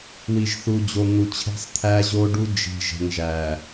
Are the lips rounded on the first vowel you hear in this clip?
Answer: no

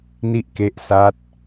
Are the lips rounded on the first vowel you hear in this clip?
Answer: no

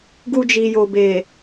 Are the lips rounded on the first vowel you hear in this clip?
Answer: yes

